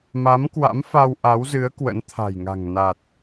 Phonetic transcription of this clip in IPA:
ma˨˦mkwa̰˧˥m fa˧wʔa˨˦wzɨ˨˦ə̯ kwə̰˧˥nt̪ʰa̤˨˩jŋa̤˨˩ŋ na˨˩t̚

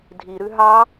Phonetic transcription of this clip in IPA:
dʱiɾʉ ɦɑ

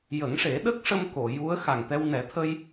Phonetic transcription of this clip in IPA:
jə˨˩˦ŋʂe˨˩˦ɗə˦˥k̚ʂə˧m ko˨˩˨ju˧˥ə̯ xa˨˩ŋt̪ɛ˧wnɛ˨˩˦ t̪ʰə˧j

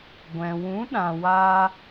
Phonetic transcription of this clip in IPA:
ɡʷɛ̃˨ wũ˨˦ɗã˨waː˧

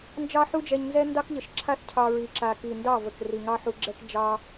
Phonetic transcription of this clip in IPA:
nd͡ʒɑ˦ħu˦d͡ʒɛ˧ɲnzɛ˦ ndɑ˦kʎə˨ʃǁʰa˦θ cʰɑ˧ɹi˨ǁa˨ ki˨ndɑ˦˨ və˨kri˨ ŋɑ˦ ħu˧ ɡ͡ǁɛ˦k d͡ʒɑ˦

